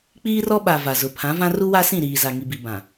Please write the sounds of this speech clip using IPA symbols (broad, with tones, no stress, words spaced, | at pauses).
k͡piː˦rɔ˦ɓa˨ va˨zʊ˨pʰã˨˦vã˦ ru˦wa˦sĩ˦˨ɾiː˨ za˨ŋi˨bi˨ bã˨